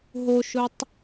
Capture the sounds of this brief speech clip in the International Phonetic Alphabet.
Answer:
ɦoʃʊtˤ

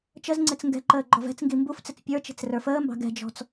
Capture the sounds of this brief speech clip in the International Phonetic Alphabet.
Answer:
t͡ʃəzŋ͡ǀɪt͡s ŋɡɛ̤ǃəː ɡ͡ǃɔvɛ̤t͡sŋɡi mbuft͡sɪt͡s pʲə˞t͡ʃi̤t͡s rə˞fəːmbɑ̤ ɡɛ̤d͡ʒɔ̤t͡s

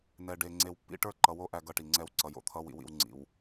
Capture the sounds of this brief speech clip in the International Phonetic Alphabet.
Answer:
nɛ˨ɖe˨ ŋ͡ǀe˨wpːḭ˦ ʈə˞˦ǃʌ˨wo˦ ʔæ˦ɡʌ˦ʈi˨ŋ͡ǀɛ˦w ǀʌ˨jo̰˨t̪ʰʌ˦ wḭ˨wḭ˨w ŋ͡ǀḭ˨w

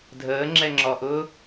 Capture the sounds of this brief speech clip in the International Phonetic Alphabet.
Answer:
dʱəːŋ͡ǁɛŋ͡ǁɔʔʊː

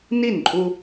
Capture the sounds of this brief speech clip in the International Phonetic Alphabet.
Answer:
ni˥˩nǃʼu˧

